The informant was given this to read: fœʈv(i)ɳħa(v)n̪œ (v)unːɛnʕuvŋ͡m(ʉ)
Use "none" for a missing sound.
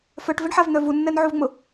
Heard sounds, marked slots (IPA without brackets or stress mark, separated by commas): ɪ, v, v, ʊ